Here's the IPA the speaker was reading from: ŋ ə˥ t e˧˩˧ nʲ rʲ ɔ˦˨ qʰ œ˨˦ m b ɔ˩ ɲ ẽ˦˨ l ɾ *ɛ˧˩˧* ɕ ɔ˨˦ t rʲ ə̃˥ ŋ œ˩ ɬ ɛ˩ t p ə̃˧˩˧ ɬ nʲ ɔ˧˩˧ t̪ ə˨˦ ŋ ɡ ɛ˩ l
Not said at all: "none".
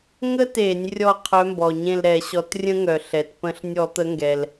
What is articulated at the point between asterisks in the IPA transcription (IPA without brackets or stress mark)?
ɛ˧˩˧